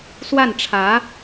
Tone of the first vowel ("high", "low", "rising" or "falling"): falling